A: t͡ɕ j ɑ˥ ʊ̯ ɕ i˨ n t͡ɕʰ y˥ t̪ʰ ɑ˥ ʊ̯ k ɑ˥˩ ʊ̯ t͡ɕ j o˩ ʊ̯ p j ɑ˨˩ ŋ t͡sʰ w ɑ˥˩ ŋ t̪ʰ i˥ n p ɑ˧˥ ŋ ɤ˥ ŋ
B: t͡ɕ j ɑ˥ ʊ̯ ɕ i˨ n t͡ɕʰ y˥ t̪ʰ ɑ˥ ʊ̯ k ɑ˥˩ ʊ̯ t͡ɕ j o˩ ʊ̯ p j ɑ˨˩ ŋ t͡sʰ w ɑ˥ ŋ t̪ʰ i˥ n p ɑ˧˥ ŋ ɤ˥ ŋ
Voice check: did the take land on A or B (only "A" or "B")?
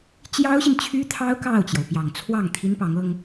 A